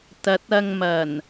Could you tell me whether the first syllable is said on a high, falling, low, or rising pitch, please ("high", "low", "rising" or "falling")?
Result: rising